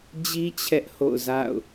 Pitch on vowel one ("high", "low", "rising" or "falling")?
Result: high